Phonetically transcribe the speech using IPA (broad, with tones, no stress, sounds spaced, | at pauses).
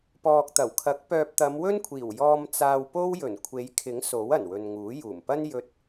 p ɔː˨ k̚ t̪ ɐ˨˩ w kʰ ɐ˨˥ k̚ p œː˨ p̚ t̪ ɐ˨˧ m w ɵ˥ n kʷʰ iː˨˩ w j ɔː˨ m t͡s aː˨ w p o˥ w j ɵ˨˩ n kʷʰ e˨˧ j kʰ ɪ˨˥ ŋ s o˨˥ w ɐ˨˩ n w ɵ˨ n ŋ uː˨˥ j uː˨˩ m p ɐ˥ n j ɵ˧ t̚